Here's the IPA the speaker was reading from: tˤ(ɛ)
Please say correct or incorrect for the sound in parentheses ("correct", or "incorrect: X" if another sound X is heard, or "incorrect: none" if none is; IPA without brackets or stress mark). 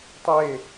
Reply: incorrect: e